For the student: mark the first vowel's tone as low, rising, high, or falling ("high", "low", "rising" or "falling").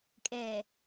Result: low